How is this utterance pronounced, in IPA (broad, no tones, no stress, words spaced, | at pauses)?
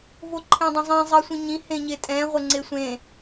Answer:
voǃʰẽdˤə̃zˤĩ zˤɜsʷĩɲĩ hẽɲetʼɛ̃ ʁʷəŋ͡ǀesʷẽ